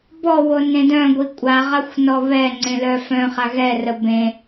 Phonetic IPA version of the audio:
b ɔ w o n ẽ d œ̃ ɡʷ i kʷʼ a ʁ a xʷ n ɔ β ɛ ŋ͡ǀ ẽ l œ f œ̃ χ a ɣ ɛ r ə b ẽ

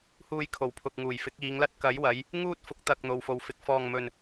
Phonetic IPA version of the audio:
h uː˧ j kʰ o˨˩ w pʰ ʊ˨ k̚ ŋ uː˨˩ j f ɪ˨˥ k̚ iː˨˧ ŋ l ɐ˥ t̚ k ɐ˨˥ j w ɐ˨˧ j | ŋ uː˥ t̚ f ʊ˨˥ k̚ t̪ ɐ˧ k̚ n̪ o˨ w f o˨ w f ɪ˨˥ k̚ f ɔː˧ ŋ m ɵ˧ n

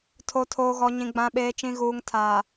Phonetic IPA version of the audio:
tʰ o˨ tʰ oː˨ ɣ ɔ˨ ɲ ĩ˨ ɡ͡b ã˨ ɓ eː˨ t͡ʃ ĩ˨ ɣ uː˨ ŋ tʰ aː˨

